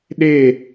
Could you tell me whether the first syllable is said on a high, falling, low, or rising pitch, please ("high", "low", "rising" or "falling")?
falling